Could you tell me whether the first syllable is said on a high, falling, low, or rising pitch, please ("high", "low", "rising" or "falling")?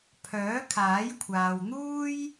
rising